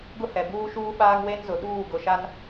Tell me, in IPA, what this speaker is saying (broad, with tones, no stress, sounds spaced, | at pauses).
ɡ ʊ˦ h ɛ˨ b uː˦ ʃ uː˦ ɓ aː˦ ŋ w e˦ n z ʊ˨ ɗ uː˦˨ ɡ ʊ˨ ʃ a˦ n